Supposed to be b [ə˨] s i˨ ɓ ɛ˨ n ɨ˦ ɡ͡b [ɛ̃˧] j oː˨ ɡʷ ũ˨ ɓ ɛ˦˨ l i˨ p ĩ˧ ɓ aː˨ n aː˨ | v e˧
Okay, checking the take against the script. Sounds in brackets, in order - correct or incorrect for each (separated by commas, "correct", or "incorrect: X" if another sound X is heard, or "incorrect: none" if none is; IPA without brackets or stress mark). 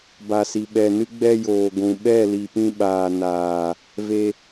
incorrect: a˨, incorrect: ɛ˧